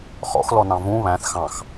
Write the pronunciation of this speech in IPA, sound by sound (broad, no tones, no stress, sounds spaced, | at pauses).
χ ɔ̰ x l ɔ n ɑ̃ v ũ β æ̃ θ x ɑ̃ x